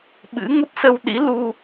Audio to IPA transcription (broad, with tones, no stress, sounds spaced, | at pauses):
ɓ ɨ̰˧˥ ŋ ə˦˥ p̚ s ə˧ w ɗ ḭ˧˥ l u˧